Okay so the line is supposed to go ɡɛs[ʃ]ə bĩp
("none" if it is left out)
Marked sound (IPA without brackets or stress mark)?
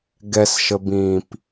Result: ʃ